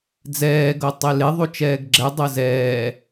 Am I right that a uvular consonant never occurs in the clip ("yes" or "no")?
yes